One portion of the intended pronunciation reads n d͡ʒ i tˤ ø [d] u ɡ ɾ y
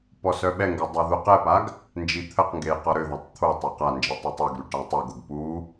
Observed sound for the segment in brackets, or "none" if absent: tˤ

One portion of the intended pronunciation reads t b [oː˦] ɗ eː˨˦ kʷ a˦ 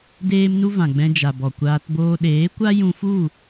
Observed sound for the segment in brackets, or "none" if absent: oː˦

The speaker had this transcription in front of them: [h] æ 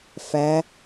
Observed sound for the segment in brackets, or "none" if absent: f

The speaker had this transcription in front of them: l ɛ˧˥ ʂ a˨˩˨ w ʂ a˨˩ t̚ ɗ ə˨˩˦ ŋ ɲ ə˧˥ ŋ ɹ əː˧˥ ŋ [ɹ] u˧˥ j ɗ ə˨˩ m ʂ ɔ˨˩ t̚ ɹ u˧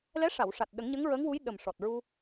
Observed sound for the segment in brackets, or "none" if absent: w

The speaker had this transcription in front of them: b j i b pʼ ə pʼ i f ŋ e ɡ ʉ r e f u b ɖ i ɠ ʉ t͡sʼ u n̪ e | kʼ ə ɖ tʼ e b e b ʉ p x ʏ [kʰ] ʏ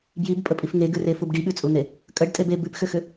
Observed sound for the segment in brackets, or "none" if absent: x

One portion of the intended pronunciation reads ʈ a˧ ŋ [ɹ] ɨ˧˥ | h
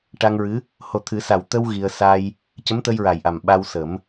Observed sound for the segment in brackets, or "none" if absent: ɹ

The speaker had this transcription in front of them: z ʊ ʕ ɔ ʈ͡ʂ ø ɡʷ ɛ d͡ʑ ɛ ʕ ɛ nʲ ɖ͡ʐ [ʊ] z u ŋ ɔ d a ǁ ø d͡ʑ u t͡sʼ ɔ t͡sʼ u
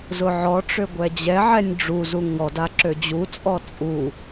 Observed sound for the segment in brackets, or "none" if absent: u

